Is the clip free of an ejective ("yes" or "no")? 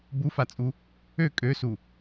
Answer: no